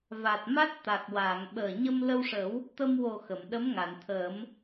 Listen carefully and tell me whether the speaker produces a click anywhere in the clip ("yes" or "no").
no